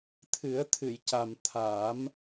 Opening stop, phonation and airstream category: aspirated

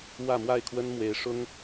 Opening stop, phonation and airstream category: aspirated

